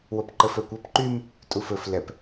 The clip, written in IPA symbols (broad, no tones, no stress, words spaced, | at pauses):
wopǃəfœkʷɤp ǃym | tʼufɵf lɛp